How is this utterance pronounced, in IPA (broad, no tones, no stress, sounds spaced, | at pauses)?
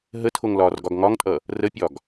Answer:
ɦ ə tʰ o ŋ l ɒː r ɡ ɒ ɡ ŋ ɒ ŋ tʼ ʌ | r ə pʲ ɒ ɡ